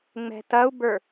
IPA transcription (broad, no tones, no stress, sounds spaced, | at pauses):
ŋ͡m ɛ̤ t ɐ u̯ b ə˞